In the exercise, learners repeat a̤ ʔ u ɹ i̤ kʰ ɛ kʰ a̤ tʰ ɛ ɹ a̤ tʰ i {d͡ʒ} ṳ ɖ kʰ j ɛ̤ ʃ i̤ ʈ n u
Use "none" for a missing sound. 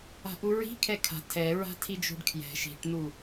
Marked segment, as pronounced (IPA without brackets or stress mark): d͡ʒ